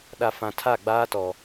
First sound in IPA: ɗ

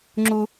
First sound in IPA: ŋ͡ǁ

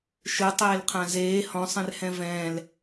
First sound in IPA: ʃ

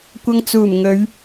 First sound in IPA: kʷ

